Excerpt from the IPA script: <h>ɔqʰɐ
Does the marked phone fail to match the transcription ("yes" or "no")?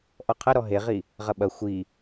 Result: yes